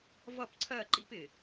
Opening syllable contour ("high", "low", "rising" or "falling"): falling